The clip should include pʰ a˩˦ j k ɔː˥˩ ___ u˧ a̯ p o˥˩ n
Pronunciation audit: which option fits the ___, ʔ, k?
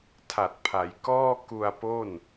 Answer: k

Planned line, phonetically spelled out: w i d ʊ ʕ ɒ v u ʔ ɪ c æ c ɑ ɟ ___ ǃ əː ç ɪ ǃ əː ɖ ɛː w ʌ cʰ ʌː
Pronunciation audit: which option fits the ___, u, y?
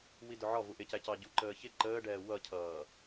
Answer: u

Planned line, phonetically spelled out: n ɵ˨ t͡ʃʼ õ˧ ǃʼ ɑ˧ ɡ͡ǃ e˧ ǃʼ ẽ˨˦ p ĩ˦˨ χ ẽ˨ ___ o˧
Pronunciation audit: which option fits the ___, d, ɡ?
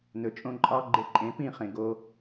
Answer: ɡ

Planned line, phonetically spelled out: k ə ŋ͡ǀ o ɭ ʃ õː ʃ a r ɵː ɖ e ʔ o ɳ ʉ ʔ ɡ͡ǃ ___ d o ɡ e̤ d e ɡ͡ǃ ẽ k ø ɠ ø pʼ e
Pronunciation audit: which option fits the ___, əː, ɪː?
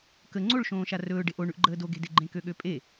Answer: əː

